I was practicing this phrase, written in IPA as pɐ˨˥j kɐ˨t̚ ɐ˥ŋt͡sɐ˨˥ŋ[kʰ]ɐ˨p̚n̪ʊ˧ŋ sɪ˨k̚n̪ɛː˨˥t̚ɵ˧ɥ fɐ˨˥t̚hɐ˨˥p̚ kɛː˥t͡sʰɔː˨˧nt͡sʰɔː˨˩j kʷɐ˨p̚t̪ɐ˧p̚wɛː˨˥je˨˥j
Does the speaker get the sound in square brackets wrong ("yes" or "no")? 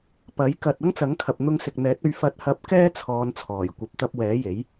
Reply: no